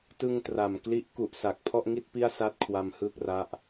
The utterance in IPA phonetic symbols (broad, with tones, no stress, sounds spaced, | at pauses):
t ɯ˧ ŋ t r a˨˩ m k l i˦˥ ʔ k u˨˩ ʔ s a˨˩ k̚ pʰ ɔ˥˩ ʔ ŋ i˥˩ t̚ p i˥˩ a̯ s a˥˩ t̚ kʰ w a˧ m h ɯː˥˩ k̚ r a˦˥ ʔ